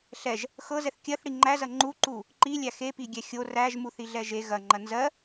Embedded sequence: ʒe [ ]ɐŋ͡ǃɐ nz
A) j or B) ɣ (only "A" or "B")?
B